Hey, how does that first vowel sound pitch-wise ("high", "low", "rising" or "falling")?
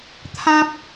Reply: high